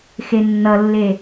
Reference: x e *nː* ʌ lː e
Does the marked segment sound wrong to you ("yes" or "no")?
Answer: no